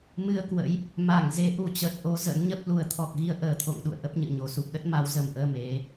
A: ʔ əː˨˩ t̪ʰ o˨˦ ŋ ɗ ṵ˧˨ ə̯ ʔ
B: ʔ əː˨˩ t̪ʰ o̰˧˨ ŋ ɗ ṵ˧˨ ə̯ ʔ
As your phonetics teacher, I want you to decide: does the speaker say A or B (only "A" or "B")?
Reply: B